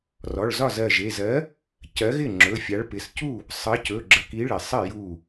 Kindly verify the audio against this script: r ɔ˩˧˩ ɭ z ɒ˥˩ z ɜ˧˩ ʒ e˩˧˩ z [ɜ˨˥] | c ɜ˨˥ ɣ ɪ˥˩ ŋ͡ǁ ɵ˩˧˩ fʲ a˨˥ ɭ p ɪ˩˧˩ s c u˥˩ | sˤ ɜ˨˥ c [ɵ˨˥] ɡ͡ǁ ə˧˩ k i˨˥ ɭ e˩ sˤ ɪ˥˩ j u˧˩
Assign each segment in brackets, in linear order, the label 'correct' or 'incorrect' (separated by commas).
correct, incorrect